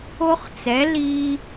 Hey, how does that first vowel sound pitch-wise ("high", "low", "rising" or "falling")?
high